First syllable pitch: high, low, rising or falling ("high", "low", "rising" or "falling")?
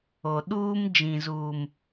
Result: low